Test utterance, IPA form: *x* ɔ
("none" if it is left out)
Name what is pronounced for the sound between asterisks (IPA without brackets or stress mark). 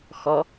x